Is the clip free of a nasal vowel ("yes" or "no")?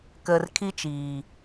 yes